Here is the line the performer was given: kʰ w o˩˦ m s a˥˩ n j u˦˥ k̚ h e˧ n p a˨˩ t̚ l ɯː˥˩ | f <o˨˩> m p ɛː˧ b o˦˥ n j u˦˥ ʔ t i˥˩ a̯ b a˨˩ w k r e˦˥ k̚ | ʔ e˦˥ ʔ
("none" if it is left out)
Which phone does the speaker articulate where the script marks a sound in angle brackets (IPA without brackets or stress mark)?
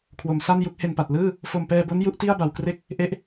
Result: o˨˩